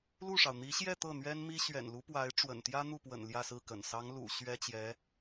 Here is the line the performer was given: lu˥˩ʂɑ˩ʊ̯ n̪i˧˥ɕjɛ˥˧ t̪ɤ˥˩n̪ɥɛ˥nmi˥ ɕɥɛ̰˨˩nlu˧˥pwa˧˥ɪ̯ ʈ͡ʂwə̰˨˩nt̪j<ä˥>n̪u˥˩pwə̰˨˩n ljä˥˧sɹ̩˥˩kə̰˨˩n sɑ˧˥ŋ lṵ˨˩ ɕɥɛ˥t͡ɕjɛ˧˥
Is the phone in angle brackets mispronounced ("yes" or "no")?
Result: no